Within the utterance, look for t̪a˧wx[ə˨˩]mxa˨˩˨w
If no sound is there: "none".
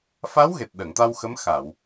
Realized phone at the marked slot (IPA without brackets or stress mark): ə˧˥